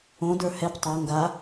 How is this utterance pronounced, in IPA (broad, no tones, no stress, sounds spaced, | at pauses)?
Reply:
õ d ə˞ h ɛ p tˤ a ŋ ɡ a